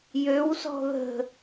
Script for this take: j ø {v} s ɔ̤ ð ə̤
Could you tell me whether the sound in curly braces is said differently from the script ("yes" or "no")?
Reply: yes